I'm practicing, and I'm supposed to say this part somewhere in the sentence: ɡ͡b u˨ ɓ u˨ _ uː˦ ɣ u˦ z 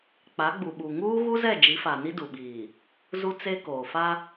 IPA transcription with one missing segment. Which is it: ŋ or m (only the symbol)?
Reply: ŋ